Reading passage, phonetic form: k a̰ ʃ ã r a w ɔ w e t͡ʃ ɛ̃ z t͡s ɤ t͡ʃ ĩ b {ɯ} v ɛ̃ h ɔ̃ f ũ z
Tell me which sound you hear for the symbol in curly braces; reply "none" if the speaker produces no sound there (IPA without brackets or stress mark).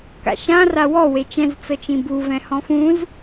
u